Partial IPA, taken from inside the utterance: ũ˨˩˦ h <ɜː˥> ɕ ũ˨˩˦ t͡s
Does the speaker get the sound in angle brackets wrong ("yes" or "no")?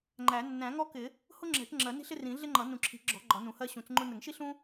yes